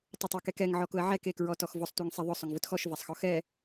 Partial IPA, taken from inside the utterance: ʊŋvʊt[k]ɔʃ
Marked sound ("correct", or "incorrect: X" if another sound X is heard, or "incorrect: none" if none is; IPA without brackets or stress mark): incorrect: x